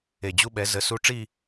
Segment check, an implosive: present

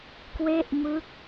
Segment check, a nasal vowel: absent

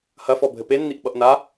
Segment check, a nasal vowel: absent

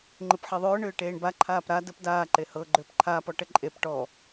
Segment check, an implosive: absent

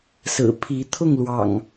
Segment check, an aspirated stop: present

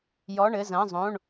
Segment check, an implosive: absent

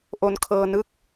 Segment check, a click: absent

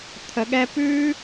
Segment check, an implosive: present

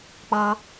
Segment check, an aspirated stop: absent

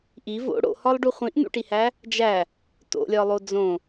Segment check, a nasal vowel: present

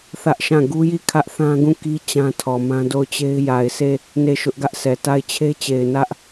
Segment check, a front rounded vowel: absent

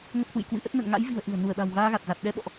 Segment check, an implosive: present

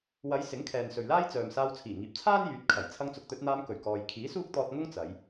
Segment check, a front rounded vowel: present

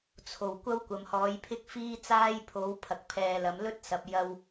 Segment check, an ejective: absent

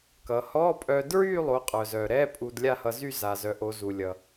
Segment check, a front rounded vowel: present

